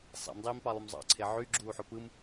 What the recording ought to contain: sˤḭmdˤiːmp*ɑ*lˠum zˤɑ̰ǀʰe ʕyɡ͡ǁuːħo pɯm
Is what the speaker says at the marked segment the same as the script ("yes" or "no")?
yes